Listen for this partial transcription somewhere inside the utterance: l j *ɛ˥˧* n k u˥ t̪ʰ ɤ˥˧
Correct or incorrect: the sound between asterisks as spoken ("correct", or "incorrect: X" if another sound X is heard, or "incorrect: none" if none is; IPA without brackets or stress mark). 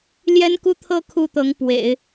incorrect: ɛ˥